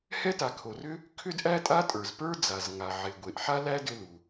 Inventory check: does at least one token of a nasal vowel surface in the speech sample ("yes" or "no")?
no